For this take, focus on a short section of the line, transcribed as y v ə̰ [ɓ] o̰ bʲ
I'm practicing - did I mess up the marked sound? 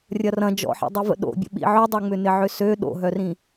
yes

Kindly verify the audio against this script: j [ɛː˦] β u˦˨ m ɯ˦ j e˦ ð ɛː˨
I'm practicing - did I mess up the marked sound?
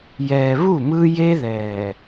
yes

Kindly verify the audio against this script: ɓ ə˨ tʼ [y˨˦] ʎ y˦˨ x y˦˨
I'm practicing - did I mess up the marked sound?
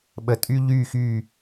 yes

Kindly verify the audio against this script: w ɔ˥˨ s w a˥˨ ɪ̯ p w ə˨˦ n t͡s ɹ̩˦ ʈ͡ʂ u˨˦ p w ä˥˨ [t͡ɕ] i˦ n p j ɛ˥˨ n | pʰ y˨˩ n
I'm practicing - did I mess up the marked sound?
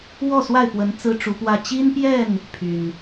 no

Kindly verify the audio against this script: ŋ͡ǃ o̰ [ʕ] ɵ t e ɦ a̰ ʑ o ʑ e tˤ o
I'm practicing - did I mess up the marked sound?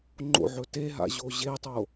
no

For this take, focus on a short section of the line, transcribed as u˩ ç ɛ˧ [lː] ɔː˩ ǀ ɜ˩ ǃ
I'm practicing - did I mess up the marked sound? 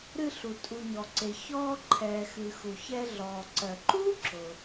yes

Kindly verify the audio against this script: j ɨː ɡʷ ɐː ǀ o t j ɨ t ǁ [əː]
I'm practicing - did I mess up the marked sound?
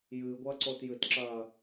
yes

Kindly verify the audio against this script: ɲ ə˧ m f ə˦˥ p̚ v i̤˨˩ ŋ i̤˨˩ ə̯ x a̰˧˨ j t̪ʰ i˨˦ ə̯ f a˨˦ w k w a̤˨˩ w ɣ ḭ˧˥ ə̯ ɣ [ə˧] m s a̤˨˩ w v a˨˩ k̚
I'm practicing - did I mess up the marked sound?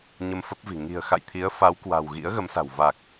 yes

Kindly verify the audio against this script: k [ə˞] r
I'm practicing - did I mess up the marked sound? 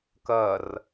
yes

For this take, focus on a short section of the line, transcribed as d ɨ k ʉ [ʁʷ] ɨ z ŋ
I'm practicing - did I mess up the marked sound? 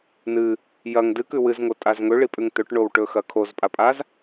yes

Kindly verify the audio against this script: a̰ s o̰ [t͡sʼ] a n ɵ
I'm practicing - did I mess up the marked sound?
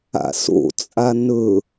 no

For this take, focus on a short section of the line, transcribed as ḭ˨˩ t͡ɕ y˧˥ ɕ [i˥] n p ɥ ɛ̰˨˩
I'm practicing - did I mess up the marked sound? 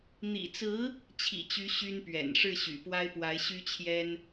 yes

